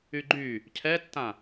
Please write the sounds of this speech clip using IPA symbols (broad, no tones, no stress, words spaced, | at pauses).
yɡ͡ǃy | cʰɛtːã